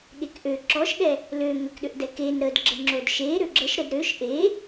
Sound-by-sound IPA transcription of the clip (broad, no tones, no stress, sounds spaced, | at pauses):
ɠ e k ʔ ø ǁ ɔ ʃ ɠ ɛ | l ø ŋ ə k ɗ ø ʔ d ɛ k e n ɾ ə d ɡ͡ǁ ə ŋ͡ǁ o d ʃ e ɾ ø ɡ͡ǁ ə ʃ ɾ ə d ɾ ø ʃ ʔ e